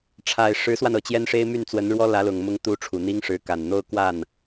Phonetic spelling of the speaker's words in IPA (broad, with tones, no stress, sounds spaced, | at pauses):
ʈ͡ʂʰ a˨˩ ɪ̯ ʂ ɻ̩˧˥ s w a˧ n ɤ˨˩ t͡ɕ j ɛ˥ n ʂ e˥ ɪ̯ m y˥˩ n t͡s w ə˧˥ n ɻ w ɔ˥ l ä˧˥ l ʊ˨˩ ŋ m ʊ˥ ŋ t̪ u˥ ʈ͡ʂʰ u˨˩ n̪ i˥ ŋ ʂ ɻ̩˧˥ k a˨˩ n n̪ o˥˧ ʊ̯ k w a˥˩ n